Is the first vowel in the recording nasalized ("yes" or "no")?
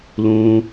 yes